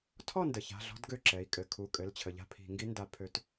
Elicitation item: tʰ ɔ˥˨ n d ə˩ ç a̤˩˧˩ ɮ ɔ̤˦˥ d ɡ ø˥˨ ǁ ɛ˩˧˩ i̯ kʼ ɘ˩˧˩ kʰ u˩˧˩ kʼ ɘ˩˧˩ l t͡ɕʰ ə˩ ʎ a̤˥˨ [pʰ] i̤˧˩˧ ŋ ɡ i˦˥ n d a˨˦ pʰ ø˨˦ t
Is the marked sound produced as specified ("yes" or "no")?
yes